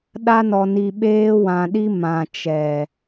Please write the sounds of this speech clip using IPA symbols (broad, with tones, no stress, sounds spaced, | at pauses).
ɗ a˦ n ɔ˧ n i˧ ɓ eː˦ w ã˧ ɗ i˦ m ã˨ t͡ʃ ɛ˨